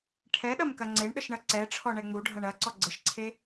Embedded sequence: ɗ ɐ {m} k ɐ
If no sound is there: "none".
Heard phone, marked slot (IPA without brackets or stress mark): m